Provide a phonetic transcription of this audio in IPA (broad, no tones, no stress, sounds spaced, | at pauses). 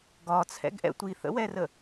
ɡ ɒ t͡sʰ ɛ̰ ɡ ʔ ɛ̰ tʷ i θ ə̰ w ɛ r ə